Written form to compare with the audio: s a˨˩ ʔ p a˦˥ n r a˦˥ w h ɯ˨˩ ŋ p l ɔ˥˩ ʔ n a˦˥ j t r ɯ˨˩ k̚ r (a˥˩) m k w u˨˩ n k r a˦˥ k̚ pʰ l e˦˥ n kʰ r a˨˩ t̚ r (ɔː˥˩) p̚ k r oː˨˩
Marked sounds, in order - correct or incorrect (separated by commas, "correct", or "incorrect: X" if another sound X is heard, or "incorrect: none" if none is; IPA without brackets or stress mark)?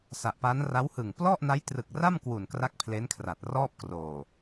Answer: correct, correct